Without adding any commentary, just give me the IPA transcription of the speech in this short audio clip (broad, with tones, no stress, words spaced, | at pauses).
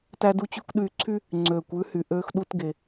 tæ˧du˧t͡ɕʉ˧kʷ ɗyː˧ǀʰy˥ | ŋ͡ǀøː˩kʷ ʉ˧hy˩ʔøː˧x ɗu˧tɡe˩